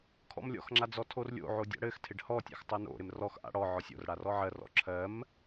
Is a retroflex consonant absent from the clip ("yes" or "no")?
no